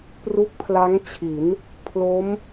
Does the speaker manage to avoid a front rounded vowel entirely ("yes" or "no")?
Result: yes